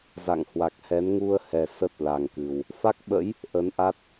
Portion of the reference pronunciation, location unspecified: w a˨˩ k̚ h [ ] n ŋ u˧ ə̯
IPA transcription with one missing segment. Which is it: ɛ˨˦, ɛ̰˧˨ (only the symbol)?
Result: ɛ˨˦